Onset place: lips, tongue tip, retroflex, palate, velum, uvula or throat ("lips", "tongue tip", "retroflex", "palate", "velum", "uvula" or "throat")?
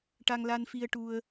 retroflex